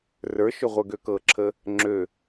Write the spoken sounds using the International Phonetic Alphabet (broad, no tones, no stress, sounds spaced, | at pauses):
r ə˞ ʃ ø ʁʷ ə˞ ɡ ø k ɤ ǁʰ ə | ŋ͡ǁ ø